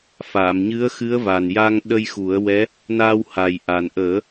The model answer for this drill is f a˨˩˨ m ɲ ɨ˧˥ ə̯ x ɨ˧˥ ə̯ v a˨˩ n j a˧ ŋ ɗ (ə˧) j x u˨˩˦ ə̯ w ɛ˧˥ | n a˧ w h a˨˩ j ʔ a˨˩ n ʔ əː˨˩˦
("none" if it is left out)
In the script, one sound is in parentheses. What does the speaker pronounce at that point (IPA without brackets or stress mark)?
ə˧